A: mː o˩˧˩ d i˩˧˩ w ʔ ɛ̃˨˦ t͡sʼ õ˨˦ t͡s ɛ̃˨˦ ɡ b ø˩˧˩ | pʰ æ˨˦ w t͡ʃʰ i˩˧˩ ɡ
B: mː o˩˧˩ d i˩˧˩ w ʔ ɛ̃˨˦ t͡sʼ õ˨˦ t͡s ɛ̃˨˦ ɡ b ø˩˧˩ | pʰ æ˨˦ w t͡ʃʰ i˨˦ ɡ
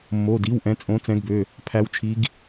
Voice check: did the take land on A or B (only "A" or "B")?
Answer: B